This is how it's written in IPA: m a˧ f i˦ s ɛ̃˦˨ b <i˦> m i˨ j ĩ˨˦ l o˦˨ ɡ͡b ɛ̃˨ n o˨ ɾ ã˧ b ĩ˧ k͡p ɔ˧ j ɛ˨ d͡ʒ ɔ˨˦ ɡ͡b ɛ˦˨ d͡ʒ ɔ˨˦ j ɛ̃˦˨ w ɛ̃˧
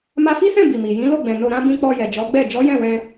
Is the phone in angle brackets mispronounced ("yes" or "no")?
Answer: yes